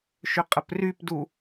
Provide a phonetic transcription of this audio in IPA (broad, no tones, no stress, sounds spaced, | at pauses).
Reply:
ʃ ʏ qʼ ə p r y p d u